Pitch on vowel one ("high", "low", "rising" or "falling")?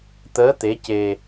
rising